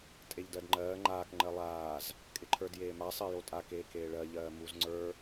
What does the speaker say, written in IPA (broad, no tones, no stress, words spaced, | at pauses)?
tʼeʎdɜdŋ͡ǃɜː ŋ͡ǃaːk ŋ͡ǃɜlˠaːz | kʼɪǃʰə˞djeːma sˤɜjotʼa keːkeːɭɜ ʎɜːmuz ŋ͡ǀə˞